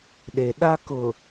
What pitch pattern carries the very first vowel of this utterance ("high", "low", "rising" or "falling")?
low